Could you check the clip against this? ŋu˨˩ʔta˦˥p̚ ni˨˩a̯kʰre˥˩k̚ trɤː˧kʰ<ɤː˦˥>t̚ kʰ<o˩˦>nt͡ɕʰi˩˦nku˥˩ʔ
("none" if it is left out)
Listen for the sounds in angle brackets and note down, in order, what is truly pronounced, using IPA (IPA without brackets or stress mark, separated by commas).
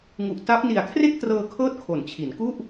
ɤː˦˥, o˩˦